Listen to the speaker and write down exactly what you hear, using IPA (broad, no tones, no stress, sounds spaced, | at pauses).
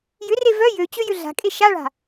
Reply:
j ʏ r e v œ j ø t͡ɕ ø j ʏ ɮ a̤ kʼ e ʃ a ɭ a̤